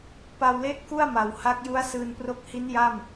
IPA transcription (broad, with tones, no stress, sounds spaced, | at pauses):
p a˧ w l e˦˥ ʔ k u˥˩ a̯ m a˨˩ w h a˦˥ k̚ j u˦˥ a̯ s ɯː˧ n p r o˦˥ k̚ h i˦˥ n j a˥˩ m